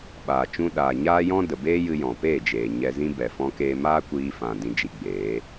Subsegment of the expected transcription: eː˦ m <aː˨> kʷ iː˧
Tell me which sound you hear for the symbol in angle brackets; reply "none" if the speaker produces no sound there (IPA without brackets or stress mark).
aː˦